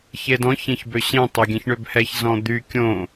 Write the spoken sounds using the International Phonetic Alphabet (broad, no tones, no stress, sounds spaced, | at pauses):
ç e d ɔ̃ ç ẽ ç b ø ɕ ẽ tˤ o ɡʲ ɛ̃ ç ɳ ø b h ɛ ç z ɔ̃ d̪ y kʲ õ